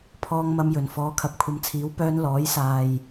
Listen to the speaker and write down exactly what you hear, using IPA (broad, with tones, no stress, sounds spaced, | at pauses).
pʰ ɔː˧ ŋ m ɐ˧ m j ɵ˨˩ n f ɔː˨˥ kʰ ɐ˨ p̚ kʷʰ ɐ˨˧ m t͡sʰ iː˨˥ w p œː˧ n l ɔː˨˥ j s aː˨ j